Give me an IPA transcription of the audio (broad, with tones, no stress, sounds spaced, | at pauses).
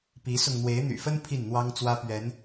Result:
p i˨˦ s ʊ˧ ŋ n̪ w e˨˦ ɪ̯ n̪ y̰˨˩ f ə˦ n pʰ i˥˨ n n̪ w ɑ˦ ŋ t͡s w ä˦ p ɥ ɛ˨˦ n